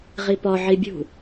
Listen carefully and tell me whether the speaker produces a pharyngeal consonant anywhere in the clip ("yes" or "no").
yes